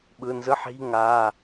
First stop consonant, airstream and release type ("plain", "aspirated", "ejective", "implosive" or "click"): implosive